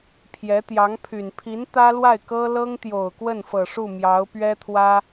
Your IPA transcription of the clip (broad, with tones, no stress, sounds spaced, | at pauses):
pʰ j ɛ˧˥ t̪ j ɑ˧˥ ŋ pʰ y˨˩ n pʰ i˧˥ n t̪ ä˥ l w a˥˩ ɪ̯ k ɤ˥ l ɤ˥ ŋ t̪ j o˨˩ ʊ̯ k w ə˥˩ n f ɤ˨˩ ʂ u˥˩ m j ɑ˧˥ ʊ̯ p ɥ ɛ˥ t̪ʰ w ä˥